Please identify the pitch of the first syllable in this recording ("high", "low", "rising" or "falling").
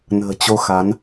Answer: low